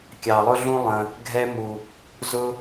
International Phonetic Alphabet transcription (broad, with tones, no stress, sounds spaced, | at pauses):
kʲ ɑ˨ lˠ ʊ˥ ɮ ũ˥ lˠ ə̃˨ | ɡʱ ɛ˦ m u˨ | z ʊ˦